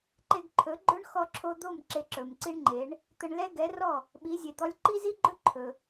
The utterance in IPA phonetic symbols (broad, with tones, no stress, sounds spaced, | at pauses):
ǃ e˧ ɡ ǃʰ ɵ˩˥ ɡ͡ǃ ɵ˥ ɳ x ɔ˧ ǁʰ o˧ d̪ o˥˩ m ǁ e˧ ǁ ɵ˩ m ǀ i˥ ɳ ŋ͡ǃ e˩˥ ɳ | t̪ ə˧ ɳ l ɛ˥ ɡ ɛ˩˥ r ɔ˥˩ | ɓ i˩˥ zʲ e˩ d̪ ɔ˧ lʲ ǃ i˥ z i˥ ɡ͡ǃ ɵ˥ ǃʰ ɵ˩